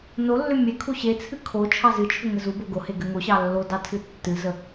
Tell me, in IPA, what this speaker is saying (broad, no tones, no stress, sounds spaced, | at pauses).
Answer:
n o lː ʏ mʲ e kʰ u ɕ e t͡sʰ ɨ kʰ o t͡ʃʰ ɑ z ɨ t͡ʃʰ ʏ ŋ ə z u b o ɡ o h e ɡ ɘ ŋ o ɕ ɑ lː o d ɑ tʰ ɨ tː ɨ z ə